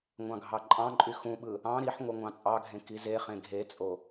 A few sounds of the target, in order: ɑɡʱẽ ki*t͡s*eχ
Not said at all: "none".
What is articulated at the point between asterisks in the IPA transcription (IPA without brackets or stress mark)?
z